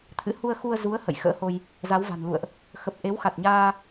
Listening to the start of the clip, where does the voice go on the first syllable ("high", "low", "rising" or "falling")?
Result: rising